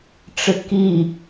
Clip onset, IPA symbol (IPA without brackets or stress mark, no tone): ʈ͡ʂ